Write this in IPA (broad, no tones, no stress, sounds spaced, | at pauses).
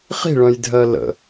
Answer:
χ i̤ ɭ œ̃ j dʱ ɜ l ə̰